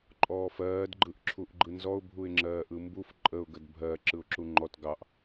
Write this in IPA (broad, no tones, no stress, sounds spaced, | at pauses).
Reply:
ǃʼ ɔː f ɜː d ɡ͡ǃ ɯ ʔ ǁʰ u ʔ ɡ͡ǃ ɯ n z ɔ ʊ̯ bʱ u ɪ̯ ŋ͡ǁ ɜː ʔ ɯ m b u f ǃʼ ə ʊ̯ ɡ ə d bʱ ɜ ǁ ɯ ʊ̯ ǁ u ŋ͡ǃ ɔ t ɡ ɑ ʔ